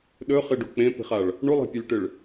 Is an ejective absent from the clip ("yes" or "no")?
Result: yes